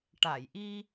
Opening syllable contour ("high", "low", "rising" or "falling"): low